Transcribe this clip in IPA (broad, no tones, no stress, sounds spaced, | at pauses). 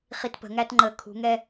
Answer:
χ i t p ə̤ ŋ æ t ŋ͡ǃ ə kʰ ṳ ŋ ɛ